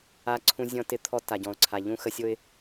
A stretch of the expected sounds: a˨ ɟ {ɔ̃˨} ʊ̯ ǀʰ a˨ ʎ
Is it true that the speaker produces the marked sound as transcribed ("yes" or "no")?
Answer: yes